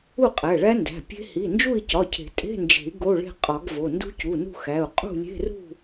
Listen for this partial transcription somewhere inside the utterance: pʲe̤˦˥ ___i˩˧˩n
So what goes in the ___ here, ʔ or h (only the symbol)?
h